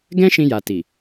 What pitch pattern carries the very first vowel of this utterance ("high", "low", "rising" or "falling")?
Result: high